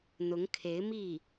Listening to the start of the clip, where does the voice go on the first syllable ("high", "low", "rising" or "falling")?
rising